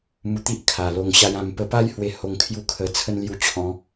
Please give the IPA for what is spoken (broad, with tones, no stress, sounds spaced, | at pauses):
m u˧ t̪ i˦ ʔ kʰ a˨˩ l o˧ ŋ ɕ a˦ j ã˥˧ m p ə˧ p a˦ j h w e˧ h o˧ ŋ kʰ j u˥˧ kʰ ə˧ t͡sʰ ə˦ n l j u˧ t͡ɕʰ ɔ̃˨˦